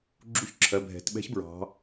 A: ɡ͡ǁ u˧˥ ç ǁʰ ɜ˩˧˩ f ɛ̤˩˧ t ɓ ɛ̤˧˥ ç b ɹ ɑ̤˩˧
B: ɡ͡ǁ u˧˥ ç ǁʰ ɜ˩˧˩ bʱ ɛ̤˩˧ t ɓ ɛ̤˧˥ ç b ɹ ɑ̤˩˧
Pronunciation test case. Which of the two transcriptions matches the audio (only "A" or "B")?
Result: B